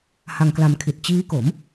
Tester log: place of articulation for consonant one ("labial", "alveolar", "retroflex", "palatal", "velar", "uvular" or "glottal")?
glottal